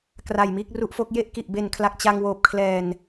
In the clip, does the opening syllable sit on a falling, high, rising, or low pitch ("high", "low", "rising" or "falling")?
low